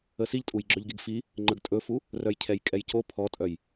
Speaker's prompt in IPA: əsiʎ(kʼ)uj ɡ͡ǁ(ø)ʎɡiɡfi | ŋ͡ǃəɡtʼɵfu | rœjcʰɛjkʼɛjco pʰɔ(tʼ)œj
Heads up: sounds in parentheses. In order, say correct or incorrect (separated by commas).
incorrect, incorrect, correct